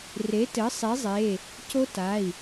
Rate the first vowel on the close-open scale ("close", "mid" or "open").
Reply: mid